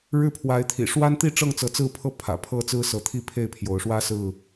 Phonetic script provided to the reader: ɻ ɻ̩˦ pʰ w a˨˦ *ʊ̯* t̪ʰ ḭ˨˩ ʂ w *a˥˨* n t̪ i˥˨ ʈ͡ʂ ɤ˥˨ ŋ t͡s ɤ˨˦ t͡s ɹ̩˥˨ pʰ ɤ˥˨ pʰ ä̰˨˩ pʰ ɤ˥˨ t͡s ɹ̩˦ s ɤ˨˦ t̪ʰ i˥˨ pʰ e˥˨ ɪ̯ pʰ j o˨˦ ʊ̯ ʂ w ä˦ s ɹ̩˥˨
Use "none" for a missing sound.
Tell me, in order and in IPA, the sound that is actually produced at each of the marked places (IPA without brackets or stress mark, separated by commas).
ɪ̯, a˦